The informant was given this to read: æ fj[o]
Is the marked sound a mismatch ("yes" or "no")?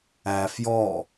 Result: yes